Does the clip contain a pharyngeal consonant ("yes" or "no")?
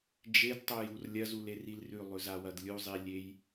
no